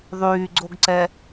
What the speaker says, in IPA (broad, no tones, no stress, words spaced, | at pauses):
ðˤyːɡ͡ǀoɡǀɛ